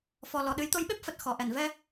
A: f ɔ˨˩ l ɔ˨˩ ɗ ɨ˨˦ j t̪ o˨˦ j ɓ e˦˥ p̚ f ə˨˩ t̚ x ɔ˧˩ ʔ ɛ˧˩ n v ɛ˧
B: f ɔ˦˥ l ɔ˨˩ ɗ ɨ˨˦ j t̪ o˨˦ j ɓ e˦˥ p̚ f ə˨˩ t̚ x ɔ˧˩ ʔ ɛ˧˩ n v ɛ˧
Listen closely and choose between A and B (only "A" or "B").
A